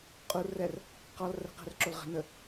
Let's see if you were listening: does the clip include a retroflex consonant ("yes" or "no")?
no